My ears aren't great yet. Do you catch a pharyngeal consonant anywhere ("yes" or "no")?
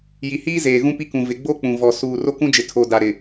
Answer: no